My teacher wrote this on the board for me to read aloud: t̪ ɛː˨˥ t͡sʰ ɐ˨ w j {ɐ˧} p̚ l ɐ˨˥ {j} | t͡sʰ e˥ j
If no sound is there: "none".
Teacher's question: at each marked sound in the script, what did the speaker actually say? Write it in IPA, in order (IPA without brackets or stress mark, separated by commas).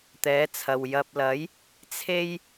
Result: ɐ˧, j